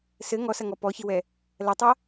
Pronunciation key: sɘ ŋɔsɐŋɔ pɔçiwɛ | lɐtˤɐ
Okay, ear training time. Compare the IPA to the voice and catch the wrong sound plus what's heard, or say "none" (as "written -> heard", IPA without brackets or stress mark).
none